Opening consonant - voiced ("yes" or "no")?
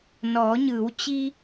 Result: yes